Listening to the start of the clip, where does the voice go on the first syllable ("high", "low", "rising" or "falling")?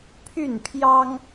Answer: falling